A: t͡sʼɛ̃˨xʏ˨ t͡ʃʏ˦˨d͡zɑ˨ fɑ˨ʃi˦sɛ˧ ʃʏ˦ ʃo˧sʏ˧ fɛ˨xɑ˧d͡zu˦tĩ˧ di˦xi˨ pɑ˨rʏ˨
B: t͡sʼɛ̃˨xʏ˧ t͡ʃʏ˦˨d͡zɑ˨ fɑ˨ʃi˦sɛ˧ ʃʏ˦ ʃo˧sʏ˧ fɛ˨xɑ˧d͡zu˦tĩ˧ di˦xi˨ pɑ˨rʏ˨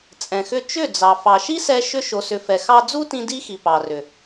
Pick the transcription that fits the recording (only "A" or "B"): B